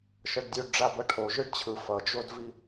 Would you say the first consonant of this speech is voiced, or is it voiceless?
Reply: voiceless